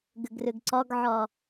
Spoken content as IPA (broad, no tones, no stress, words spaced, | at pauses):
ɡʏɡrʏɡǀɒɡʕɒ